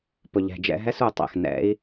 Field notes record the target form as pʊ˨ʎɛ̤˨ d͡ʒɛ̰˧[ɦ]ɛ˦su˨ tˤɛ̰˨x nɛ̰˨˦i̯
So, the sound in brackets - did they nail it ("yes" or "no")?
yes